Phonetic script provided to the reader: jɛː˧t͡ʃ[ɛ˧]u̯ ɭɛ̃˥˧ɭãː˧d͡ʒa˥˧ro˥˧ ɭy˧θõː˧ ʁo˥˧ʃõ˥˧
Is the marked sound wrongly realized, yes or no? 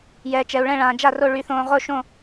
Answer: no